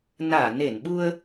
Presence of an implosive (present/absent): present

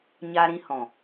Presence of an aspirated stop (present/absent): absent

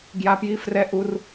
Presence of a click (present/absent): absent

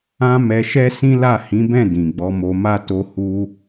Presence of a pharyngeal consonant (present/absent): absent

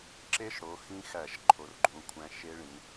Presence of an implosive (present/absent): absent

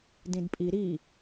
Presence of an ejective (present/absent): present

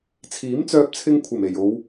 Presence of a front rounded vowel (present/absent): present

